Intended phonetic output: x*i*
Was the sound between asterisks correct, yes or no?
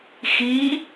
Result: yes